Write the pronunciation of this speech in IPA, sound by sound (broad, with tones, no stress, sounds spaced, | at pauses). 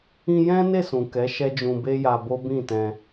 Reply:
ĩ˧ j ɛ̃˦ n e˦˨ s ũ˨ k ɛ˨˦ ʃ ɛ˦ d͡ʒ ũ˧ b e˦ j a˧ b o˦ b ĩ˦˨ t ɛ̃˧